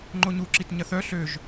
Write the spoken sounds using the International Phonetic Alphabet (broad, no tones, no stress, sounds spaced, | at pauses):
ŋ͡ǃ o ɲ u ǁ i t ɲ ɐ θ œ ɬ ø ʒ